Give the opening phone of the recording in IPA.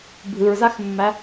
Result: bʱ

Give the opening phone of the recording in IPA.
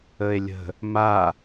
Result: ə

